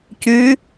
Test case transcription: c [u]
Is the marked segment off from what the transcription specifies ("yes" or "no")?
yes